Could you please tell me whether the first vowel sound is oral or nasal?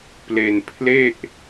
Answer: oral